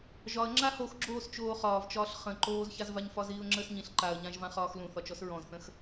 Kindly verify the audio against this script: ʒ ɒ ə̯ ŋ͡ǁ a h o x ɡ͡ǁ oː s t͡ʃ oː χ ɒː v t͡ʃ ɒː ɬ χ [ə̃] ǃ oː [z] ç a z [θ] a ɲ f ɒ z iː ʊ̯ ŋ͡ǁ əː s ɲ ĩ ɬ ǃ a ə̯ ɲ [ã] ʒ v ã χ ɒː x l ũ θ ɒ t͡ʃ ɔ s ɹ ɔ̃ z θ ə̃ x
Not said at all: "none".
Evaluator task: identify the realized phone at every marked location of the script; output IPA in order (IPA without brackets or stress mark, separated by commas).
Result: ə̃, z, v, ã